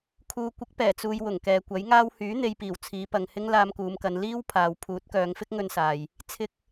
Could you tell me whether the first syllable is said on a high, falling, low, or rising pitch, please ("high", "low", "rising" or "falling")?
low